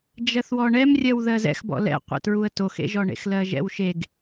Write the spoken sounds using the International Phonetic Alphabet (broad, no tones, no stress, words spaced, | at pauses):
d͡ʒɜθwɔɳɛmrʲɜw ðɜzɛ̰xbɔ̰ lɛ̰qʷɛ̰tɹuə̯ toxḛʒɔɳḛx lɜʒɛ̰wʃeɡ